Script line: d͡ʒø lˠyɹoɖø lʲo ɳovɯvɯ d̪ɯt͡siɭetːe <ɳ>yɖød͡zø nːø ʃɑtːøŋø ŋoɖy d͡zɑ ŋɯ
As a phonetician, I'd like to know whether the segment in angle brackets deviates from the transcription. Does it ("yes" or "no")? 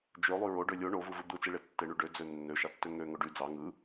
no